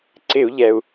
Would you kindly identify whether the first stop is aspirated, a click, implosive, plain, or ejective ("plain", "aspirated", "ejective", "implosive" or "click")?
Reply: click